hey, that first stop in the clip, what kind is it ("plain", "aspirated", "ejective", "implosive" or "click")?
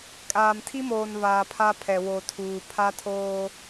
ejective